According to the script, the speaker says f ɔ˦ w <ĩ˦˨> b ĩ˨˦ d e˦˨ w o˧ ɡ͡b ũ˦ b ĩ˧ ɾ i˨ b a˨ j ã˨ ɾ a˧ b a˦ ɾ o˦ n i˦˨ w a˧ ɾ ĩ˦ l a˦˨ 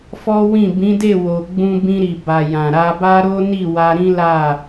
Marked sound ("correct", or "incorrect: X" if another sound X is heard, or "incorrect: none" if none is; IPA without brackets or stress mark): correct